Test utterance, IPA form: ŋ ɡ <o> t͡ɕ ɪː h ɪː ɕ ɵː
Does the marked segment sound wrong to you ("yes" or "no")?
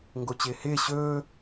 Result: no